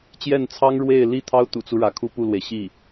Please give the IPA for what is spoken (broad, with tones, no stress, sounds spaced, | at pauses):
t͡ɕ j ɛ˥˩ n t͡sʰ ɑ˥ ŋ ɻ w e˥˩ ɪ̯ l i˥ t̪ʰ ɑ˥ ʊ̯ t̪ ṵ˨˩ t͡s u˦ ɻ ä˧˥ kʰ u˥ p u˥˩ l w e˩ ɪ̯ ɕ i˥˩